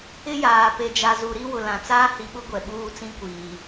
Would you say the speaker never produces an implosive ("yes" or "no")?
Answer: no